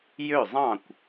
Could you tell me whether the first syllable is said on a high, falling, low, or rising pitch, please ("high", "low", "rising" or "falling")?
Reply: falling